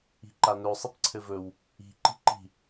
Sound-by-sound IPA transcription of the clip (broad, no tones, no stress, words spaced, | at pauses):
i̤ǃanɵ sˤɘpǀʰɘvɵw | i̤ ǃi̤ǃi̤